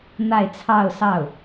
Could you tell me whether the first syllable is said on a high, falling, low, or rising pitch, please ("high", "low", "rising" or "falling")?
falling